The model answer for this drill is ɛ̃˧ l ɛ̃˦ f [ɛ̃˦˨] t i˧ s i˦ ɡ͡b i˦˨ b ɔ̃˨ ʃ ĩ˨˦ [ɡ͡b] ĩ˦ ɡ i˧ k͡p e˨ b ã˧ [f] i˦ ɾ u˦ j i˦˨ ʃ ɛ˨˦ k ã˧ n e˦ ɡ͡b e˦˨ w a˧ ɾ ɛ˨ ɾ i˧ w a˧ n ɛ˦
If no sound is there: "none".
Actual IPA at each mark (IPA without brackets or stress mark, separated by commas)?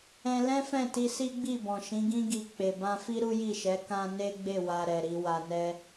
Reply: ɛ̃˦˨, ɡ, f